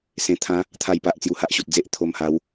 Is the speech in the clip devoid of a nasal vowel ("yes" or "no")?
no